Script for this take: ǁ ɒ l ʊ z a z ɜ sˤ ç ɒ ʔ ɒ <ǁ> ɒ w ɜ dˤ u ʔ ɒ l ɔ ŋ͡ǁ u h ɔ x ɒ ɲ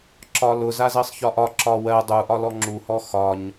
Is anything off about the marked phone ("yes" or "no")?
no